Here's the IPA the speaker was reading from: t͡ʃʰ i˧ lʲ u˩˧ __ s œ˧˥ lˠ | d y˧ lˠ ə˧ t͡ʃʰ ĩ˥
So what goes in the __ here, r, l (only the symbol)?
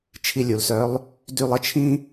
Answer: l